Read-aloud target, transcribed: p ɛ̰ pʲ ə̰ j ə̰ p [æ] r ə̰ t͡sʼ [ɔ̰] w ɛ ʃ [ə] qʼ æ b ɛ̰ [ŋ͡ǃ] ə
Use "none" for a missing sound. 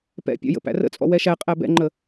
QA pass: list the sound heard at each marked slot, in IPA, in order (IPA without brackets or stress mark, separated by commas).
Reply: æ̰, ɔ̰, æ, ŋ͡ǃ